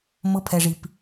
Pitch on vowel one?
rising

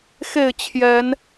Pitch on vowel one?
falling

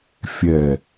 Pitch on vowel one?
low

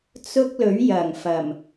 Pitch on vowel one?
high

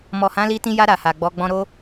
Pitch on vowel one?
low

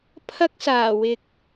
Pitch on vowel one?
high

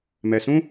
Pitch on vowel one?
low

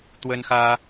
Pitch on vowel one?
high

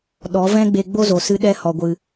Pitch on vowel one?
rising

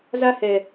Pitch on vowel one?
high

